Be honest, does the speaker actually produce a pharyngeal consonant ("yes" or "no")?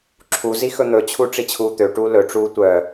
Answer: no